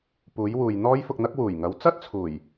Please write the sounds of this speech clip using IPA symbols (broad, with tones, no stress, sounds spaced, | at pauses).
p uː˨˥ j w uː˨ j n̪ ɔː˥ j f ʊ˧ k̚ n̪ ɐ˥ k̚ w uː˨˩ j ŋ ɐ˨˥ w t͡s ɐ˥ t̚ t͡sʰ uː˨˩ j